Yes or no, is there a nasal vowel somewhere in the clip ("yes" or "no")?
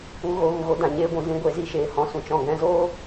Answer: yes